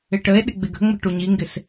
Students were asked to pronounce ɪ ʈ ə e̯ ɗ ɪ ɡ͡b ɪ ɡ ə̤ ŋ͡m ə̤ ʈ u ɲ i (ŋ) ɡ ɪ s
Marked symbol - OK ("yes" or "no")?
yes